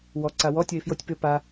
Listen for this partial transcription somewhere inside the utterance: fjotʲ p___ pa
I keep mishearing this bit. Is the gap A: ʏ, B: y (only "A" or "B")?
A